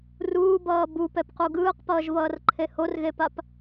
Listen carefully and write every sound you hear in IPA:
r uː b ʌː b u p ɛ p q u ɡ ɯː q p ʌː ʒ v ʌː r ǃʰ e h o r ɣ e p a p

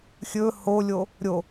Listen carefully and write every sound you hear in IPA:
xʲ ɵ h o lʲ o | ɾʲ o

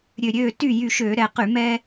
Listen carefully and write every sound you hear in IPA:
ɾʲ ø˧˩ ɾʲ øː˥˨ t y˥˨ j y˧˩ ʃ øː˧˩˧ ɾ ɛ˧˩ q y˧˩˧ m ɛ˦

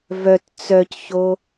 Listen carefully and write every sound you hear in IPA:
v œ t t͡s œ c ç o

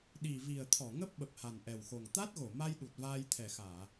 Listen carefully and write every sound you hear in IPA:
ɗ i˨˩ v i˨˩ ə̯ t̪ʰ ɔ˧˩ ŋ ə˦˥ p̚ ɓ ə˨˩ p̚ h a˨˩ n ʔ ɛ˨˩ w x o˨˩ ŋ t̪ a˦˥ t̚ ɣ o˧˩ m a˧ j ɗ u˨˩ t̚ v aː˧ j t̪ʰ ɛ˨˩ x aː˧˩˨

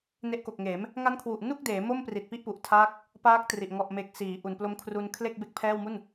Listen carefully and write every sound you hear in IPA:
n e˦˥ ʔ k o˨˩ k̚ ŋ eː˩˦ m | ŋ a˦˥ n kʰ w u˨˩ ʔ n u˥˩ k̚ d eː˩˦ m o˥˩ m p r i˨˩ t̚ p i˥˩ ʔ p u˨˩ ʔ tʰ aː˥˩ k̚ | p aː˦˥ k̚ t r i˨˩ ʔ ŋ ɔ˨˩ ʔ m e˨˩ k̚ s iː˩˦ ʔ u˨˩ n p l o˦˥ m kʰ r u˧ n kʰ l e˥˩ k̚ b e˥˩ k̚ pʰ ɛː˥˩ w m u˥˩ n

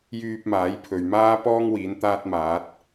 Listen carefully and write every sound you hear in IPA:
j yː˧ p̚ m aː˨˥ j pʰ ɵ˨ ɥ m aː˥ p ɔː˥ ŋ w iː˨˥ n t̪ aː˥ t̚ m aː˨˥ t̚

